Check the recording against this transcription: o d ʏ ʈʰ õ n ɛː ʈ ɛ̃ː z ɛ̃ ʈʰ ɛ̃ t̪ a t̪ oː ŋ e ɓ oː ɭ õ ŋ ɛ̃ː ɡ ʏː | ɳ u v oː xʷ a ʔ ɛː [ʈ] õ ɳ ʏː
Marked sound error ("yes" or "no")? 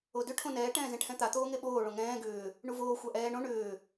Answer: yes